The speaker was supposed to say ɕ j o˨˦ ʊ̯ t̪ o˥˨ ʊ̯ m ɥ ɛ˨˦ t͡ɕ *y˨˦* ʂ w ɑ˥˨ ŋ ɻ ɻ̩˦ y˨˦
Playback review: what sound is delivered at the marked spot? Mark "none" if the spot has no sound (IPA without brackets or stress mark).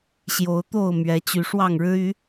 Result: y˨˦